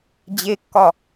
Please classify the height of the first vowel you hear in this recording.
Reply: mid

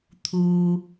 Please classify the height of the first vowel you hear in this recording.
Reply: high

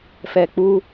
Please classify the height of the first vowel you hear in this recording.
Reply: mid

